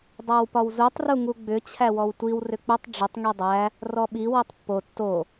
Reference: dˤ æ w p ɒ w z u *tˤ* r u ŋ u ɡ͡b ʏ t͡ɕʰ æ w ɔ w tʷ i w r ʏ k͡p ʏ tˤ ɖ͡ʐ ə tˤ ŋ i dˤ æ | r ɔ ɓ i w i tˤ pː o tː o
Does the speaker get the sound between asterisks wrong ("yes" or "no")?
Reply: no